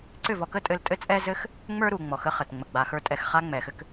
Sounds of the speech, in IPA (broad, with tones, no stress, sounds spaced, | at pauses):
ǀ ʏ˦˨ v ɔ˧ k ə˦ tʼ ɘ˧ l tʼ ɘ˦ t͡sʼ ɛ˦ z ɘ˦ x | ŋ͡m ə˞˦ ɾ u˨ ŋ͡m ɔ˨ x ə˧ χ ə˨ t ŋ͡m ə˨ ɡ͡b a˨ x ə˞˧ tʼ ɛ˨ x χ a˦ ŋ͡m ɛ˨ x ɘ˦ k